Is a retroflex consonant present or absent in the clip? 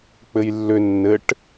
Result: present